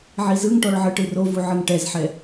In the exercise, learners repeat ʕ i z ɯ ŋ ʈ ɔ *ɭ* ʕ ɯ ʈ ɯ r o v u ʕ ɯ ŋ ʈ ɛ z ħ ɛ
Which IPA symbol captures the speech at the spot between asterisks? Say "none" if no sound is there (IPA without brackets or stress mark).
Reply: ɭ